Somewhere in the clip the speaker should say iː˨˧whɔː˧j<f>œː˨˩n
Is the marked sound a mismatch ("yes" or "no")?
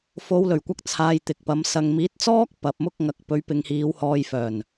no